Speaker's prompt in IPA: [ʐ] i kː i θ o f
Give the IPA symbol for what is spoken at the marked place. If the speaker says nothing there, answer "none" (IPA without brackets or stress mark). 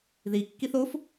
ð